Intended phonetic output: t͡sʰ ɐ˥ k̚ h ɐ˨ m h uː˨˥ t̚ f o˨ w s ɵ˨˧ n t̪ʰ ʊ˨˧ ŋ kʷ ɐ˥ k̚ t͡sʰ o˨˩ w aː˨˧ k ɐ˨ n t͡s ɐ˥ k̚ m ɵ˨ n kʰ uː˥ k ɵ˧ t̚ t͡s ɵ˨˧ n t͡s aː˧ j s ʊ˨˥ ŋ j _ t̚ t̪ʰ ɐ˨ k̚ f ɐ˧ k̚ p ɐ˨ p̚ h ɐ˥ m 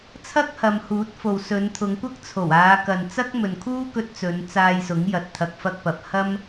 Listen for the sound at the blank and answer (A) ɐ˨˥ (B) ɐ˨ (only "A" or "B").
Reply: B